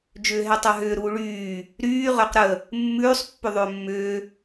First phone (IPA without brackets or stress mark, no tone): d͡ʒ